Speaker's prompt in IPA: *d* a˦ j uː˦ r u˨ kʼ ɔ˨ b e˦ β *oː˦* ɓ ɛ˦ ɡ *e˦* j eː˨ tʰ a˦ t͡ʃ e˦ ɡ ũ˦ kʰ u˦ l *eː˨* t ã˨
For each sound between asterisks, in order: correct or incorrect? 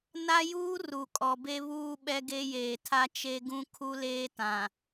incorrect: n, incorrect: uː˦, correct, incorrect: eː˦

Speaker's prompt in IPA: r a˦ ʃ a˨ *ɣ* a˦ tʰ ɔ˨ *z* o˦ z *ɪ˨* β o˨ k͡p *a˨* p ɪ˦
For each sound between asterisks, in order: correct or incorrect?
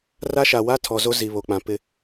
incorrect: w, correct, incorrect: i˨, incorrect: ã˨

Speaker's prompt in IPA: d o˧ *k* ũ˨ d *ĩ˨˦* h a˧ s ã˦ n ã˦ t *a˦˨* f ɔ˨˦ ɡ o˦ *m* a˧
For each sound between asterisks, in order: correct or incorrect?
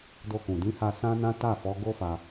correct, correct, correct, incorrect: f

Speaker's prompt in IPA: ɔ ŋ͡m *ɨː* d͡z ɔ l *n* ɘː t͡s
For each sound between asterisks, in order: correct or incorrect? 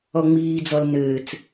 incorrect: iː, correct

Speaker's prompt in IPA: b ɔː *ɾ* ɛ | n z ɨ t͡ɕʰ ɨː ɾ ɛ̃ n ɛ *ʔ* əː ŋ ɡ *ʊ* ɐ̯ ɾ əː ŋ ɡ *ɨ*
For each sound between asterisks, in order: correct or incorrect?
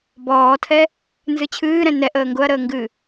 incorrect: tʰ, correct, correct, correct

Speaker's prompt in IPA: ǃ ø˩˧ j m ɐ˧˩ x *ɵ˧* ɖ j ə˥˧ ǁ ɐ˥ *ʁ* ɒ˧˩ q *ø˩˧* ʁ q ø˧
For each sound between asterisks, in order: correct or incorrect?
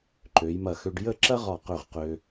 incorrect: ø˧, correct, incorrect: ø˧˩

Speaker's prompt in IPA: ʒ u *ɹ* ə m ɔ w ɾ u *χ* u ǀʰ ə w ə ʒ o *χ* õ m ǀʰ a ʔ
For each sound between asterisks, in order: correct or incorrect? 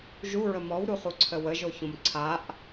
correct, correct, incorrect: ç

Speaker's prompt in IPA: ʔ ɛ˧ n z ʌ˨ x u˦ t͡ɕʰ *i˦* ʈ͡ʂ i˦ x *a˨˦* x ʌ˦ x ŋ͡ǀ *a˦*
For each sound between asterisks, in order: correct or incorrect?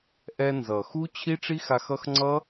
correct, incorrect: a˧, incorrect: ʌ˦

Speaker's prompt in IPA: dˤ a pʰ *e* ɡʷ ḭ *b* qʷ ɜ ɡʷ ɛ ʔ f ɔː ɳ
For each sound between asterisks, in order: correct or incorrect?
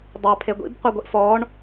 correct, correct

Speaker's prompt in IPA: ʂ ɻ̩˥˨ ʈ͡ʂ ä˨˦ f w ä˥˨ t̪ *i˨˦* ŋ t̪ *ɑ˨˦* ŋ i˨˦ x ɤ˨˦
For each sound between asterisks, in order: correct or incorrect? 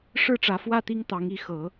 incorrect: i˦, correct

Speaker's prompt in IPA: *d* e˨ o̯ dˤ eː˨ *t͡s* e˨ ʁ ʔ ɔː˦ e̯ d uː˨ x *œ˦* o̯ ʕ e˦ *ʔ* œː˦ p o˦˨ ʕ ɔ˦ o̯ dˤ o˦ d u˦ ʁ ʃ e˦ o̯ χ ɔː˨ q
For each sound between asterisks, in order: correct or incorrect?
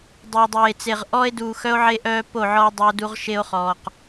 incorrect: dˤ, correct, correct, correct

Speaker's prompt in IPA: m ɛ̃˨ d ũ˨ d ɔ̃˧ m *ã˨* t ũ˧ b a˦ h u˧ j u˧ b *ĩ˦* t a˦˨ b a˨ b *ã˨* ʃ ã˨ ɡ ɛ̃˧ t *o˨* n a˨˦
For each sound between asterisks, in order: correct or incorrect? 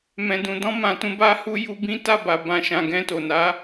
correct, correct, correct, correct

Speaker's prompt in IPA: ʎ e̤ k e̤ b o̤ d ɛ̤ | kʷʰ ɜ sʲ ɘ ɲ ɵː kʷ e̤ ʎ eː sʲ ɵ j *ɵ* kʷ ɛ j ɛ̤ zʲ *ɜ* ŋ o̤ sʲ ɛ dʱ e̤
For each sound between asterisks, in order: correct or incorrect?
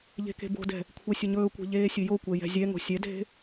incorrect: o, incorrect: ɛ

